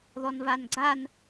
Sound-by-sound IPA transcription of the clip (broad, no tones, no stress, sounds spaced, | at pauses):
ð ɔ n v a n ɡ͡ǀ a n